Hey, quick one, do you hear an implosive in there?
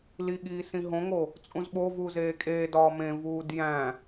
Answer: yes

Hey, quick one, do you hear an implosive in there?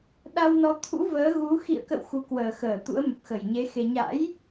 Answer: yes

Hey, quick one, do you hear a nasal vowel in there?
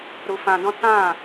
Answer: yes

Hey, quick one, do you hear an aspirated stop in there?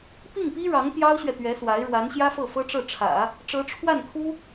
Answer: yes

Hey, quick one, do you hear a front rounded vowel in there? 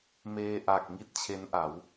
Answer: no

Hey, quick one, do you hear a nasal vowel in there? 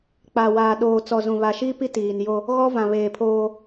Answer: yes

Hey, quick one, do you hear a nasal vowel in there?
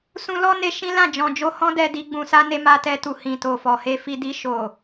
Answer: yes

